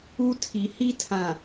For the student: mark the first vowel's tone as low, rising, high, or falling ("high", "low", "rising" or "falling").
high